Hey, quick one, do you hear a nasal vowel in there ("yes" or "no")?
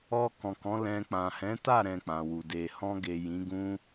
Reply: yes